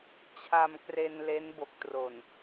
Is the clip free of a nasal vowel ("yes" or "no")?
yes